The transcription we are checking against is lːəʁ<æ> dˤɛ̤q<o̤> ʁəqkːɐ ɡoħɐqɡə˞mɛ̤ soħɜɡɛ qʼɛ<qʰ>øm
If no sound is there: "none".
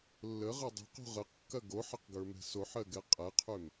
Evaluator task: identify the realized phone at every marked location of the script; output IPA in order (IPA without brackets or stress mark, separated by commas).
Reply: ɜ, o̤, qʰ